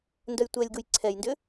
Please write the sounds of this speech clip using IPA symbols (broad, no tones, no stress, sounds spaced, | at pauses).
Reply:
n d œ j tʷ ɛ lʲ ɡ u j ǀʰ ɛ j n d ʏ